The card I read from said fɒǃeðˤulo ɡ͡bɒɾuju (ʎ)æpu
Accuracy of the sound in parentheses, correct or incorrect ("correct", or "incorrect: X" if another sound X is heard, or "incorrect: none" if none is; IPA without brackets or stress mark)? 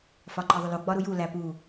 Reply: incorrect: l